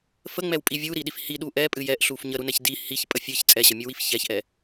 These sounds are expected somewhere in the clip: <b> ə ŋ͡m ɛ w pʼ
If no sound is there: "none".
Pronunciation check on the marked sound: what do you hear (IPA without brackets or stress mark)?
f